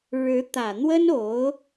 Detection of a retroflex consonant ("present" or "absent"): present